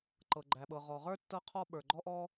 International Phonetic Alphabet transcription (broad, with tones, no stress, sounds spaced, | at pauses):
ǃ ɤ˩ ɡ͡ǃ æ˩ ɓ ɤ˩ ʁ ɔ˩ ʁ ə˞˥ tː ɤ˥ qʰ ɔ˥ ɓ ə˞˩ ɡ͡ǃ ɔ˥ ʔ ɔ˥